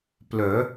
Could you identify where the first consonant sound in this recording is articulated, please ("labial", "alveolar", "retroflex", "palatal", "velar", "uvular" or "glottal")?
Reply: labial